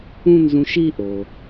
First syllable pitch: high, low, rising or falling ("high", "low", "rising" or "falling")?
high